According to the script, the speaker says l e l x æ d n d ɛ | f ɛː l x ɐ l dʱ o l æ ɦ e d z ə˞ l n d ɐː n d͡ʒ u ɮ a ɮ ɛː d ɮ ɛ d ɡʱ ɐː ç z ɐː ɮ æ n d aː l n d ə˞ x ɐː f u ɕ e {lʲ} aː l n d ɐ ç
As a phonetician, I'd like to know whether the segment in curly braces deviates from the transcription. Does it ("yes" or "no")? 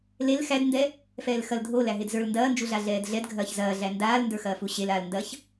yes